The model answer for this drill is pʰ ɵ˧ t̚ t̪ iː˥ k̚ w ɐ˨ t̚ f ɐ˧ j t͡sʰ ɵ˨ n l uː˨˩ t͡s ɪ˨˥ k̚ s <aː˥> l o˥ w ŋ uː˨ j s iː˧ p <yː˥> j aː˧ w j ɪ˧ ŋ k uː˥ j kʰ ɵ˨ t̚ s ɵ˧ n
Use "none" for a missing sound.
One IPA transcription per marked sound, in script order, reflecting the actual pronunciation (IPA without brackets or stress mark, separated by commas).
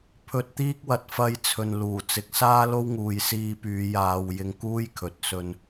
aː˥, yː˨˧